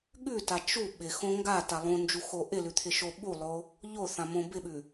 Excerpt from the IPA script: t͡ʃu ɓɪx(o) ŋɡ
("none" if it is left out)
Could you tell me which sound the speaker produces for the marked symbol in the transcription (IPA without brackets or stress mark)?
õ